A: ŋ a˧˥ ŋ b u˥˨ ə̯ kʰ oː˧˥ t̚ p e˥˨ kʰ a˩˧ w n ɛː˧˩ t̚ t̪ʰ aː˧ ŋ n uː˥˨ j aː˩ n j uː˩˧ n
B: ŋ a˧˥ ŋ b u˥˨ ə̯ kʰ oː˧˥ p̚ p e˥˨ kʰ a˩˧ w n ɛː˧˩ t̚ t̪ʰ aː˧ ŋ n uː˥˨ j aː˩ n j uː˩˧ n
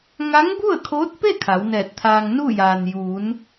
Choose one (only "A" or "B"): A